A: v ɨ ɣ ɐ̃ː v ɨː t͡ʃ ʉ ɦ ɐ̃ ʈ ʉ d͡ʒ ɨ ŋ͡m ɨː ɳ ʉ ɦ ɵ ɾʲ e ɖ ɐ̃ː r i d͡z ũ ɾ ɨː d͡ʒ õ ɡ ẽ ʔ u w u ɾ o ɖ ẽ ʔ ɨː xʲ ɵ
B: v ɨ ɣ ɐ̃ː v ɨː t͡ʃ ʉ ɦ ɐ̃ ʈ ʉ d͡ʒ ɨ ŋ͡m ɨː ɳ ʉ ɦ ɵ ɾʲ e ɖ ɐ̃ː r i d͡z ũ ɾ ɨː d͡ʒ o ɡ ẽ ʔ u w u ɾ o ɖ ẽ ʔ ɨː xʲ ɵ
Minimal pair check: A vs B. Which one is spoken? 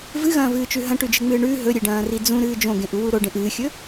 A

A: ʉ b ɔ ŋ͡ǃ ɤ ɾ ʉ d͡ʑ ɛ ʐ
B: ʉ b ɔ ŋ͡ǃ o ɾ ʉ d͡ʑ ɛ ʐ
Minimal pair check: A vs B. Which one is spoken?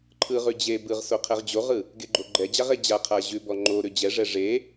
B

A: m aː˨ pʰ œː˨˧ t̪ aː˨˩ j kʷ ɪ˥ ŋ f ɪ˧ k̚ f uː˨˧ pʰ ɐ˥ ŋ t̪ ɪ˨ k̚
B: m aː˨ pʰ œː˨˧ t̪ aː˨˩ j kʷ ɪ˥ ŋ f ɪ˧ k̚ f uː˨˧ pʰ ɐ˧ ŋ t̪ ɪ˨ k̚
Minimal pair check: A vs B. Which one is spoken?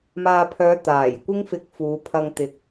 B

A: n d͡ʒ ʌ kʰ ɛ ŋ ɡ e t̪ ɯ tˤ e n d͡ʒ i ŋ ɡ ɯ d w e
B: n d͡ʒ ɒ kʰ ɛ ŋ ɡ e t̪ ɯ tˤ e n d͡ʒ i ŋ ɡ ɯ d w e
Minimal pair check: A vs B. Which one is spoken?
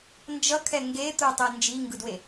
A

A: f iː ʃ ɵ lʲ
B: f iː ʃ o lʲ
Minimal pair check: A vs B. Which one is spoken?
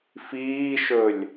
A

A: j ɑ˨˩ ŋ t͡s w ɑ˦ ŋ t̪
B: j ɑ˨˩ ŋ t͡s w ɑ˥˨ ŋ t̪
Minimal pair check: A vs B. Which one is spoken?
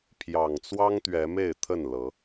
A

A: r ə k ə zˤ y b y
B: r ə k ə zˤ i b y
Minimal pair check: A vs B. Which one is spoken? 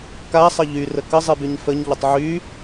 B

